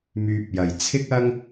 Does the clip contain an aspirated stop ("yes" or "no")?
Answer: yes